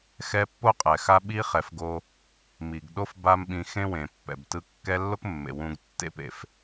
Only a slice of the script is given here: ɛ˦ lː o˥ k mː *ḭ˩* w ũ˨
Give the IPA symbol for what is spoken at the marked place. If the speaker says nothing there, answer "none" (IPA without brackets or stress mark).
ḛ˩